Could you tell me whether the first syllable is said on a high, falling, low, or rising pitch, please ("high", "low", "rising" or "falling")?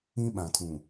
high